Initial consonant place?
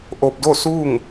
glottal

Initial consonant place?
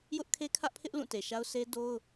palatal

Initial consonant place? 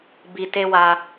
labial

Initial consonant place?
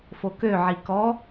labial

